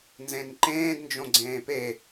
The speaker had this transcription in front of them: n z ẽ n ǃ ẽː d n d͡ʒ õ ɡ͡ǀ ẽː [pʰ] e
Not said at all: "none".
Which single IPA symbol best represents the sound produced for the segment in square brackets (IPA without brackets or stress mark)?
p